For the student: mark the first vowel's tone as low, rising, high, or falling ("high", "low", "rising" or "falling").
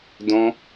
high